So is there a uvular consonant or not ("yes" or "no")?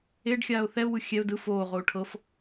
yes